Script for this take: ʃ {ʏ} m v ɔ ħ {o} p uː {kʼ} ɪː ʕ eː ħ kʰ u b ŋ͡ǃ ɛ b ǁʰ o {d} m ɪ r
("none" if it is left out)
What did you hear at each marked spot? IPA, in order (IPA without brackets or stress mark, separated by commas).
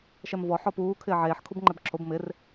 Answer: ɛ, ɔ, kʰ, b